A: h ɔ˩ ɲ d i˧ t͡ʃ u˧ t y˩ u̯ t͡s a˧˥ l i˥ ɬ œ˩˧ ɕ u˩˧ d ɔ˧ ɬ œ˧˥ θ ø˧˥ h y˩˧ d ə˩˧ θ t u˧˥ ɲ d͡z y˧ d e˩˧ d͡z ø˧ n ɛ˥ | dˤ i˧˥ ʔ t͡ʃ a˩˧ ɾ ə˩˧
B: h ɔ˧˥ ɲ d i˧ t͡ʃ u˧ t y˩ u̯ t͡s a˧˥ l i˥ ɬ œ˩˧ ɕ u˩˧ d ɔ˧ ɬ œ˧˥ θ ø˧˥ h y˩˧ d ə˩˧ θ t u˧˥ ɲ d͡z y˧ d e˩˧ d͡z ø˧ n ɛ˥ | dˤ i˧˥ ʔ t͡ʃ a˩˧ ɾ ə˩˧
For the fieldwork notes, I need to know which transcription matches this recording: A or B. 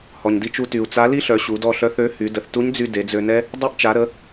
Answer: A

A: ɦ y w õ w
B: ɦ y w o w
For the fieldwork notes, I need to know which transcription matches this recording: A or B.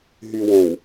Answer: A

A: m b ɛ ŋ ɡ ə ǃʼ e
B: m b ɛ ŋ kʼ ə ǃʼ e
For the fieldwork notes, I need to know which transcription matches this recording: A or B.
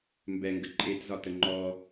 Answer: A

